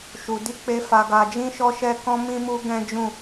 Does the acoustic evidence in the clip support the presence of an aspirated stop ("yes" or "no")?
no